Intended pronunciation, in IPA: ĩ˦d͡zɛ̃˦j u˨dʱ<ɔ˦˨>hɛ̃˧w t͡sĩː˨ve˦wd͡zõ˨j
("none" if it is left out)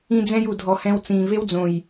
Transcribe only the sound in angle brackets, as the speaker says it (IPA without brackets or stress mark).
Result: ɔ˨